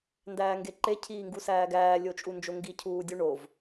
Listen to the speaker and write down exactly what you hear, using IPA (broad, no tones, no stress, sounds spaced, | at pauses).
n d æː ŋ ɡ e ǃ e cʰ iː ŋ ɡ u s æː ɡ æː lʲ o t͡ʃʼ u n d͡ʒ o ŋ ɡ i cʰ uː dʲ u ɳ o v